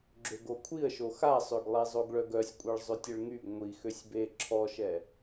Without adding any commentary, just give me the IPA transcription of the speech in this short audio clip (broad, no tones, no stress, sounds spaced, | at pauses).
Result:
ɡ͡ǁ ø ɡ o kʷʰ i ə̯ ʃ o x a sˤ ø ɡ lˠ e zˤ o ɡ ɭ œ ɡ œ sʲ kʷʼ e ɭ zˤ ø tʲ ə ɭ ŋ y ɡ ŋʷ i x ø sʲ b e ǁʰ ɔ ʃ ɛ